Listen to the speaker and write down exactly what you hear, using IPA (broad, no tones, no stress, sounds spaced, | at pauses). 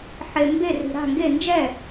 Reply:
ħ e m b e r i̤ ɾ a̤ ŋ ɡ e n d͡ʒ ɛ